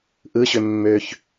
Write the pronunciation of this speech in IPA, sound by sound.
ʔ ɯ ɕ ø mː ø ç

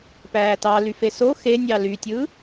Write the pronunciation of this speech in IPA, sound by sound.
p æː t ɑ l y f e s o x e nʲ ɑ l y tʲ ɯ

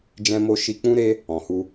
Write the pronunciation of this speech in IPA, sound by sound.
d͡ʒ ɛ̃˦ m o˦ ʃ i˧ k͡p ũ˦ ɾ e˦ | ɔ̃˨ h u˧

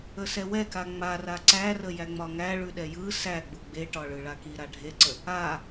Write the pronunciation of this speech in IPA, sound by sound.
ə s ɛ w ɛ k a ŋ͡m a r a ǀ æ r ə j æ ŋ͡m ɒ ŋ æ ɭ ʉ ɗ ɛ j ɯ s æ ɡ͡b u ɡ͡b e ʈ ɒ ɭ ɯ ɭ a k i ɾ a ɖʱ e ǀ ə | a

